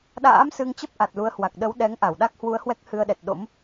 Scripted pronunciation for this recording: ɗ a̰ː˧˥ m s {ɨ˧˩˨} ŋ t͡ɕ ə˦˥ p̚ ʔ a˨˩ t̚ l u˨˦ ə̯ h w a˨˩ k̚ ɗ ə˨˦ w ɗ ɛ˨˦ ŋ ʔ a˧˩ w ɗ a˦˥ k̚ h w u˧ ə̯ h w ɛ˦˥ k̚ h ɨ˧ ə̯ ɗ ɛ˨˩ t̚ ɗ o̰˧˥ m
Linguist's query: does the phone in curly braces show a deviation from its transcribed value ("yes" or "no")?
yes